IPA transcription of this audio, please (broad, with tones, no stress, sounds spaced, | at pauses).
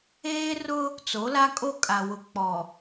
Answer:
eː˦ r ʊ˦ | t͡s o˨˦ l a˦ kʼ o˦ kʼ a˨ w ʊ˨ k͡p ɔ˨